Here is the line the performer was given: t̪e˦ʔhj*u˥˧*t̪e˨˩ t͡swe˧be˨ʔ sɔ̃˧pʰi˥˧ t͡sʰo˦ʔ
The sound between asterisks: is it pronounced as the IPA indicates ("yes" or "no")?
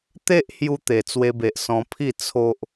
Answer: no